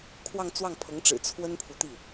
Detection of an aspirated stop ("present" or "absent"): present